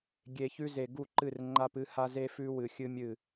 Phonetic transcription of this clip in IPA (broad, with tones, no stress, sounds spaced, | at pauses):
ɡʲ e˨ ç ʉ˦ z e˨ ɡ u˦˨ ǃ ɨ˦˨ r ŋ͡ǃ a˦ p ɨ˦ h a˦ z e˦ f ʉ˦ w ɨ˨ xʲ ɨ˦ mʲ ɨ˦˨